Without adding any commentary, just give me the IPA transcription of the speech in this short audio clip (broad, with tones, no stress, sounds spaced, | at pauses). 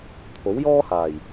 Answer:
t̪ʰ o˨˥ w j ɔː˥ h aː˨˩ j